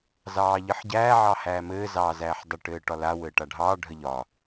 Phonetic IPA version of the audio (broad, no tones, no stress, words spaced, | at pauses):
zɑːʎɘħɟæː ʕɑhæːmɘː zɑːzæːħdˤə ʈɘːʈɒla wɘːʈaɖʱɑː ɖʱəʎɒ